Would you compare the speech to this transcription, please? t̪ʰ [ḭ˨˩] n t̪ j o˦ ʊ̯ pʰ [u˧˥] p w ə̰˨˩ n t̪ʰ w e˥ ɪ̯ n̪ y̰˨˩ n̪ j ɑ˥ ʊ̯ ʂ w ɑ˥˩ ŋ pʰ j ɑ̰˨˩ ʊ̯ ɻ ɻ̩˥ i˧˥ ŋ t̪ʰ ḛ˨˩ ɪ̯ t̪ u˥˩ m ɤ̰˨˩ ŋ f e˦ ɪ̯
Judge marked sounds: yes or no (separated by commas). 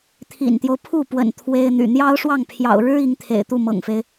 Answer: yes, no